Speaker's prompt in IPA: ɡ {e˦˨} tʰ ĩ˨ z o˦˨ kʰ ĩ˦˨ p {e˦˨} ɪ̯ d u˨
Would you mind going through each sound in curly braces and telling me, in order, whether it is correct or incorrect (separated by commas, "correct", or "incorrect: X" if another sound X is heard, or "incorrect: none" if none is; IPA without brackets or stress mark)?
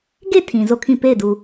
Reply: correct, correct